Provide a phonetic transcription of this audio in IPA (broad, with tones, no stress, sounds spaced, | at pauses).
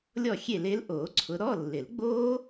lʲ ɔ˥˨ xʲ e˥˨ l e˦˥ l ʔ oː˨˩˦ ǀʰ ʊ˨˦ ɾ ɔ˧˥˧ lː ɪ˨˩˦ l ɡ͡b oː˦˥